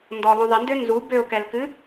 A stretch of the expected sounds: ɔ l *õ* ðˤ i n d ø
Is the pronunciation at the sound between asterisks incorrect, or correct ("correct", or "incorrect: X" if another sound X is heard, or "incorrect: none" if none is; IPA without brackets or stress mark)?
incorrect: ɔ̃